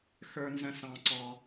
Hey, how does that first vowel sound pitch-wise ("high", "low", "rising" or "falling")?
low